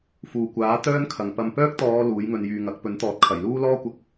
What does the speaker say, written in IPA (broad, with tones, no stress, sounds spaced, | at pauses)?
f uː˨ kʷ aː˨˥ t̪ œː˥ n kʰ ɐ˨ ŋ p ɐ˧ m p œː˥ k̚ t̪ ɔː˨˧ l uː˨˥ j ŋ ɵ˧ n j yː˧ ŋ ɐ˨˥ k̚ p ɵ˨˥ n t̪ ɔː˨ t̚ kʰ ɐ˨˩ j l uː˥ l ɔː˥ kʷ ɐ˧ k̚